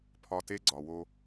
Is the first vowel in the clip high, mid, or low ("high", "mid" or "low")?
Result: low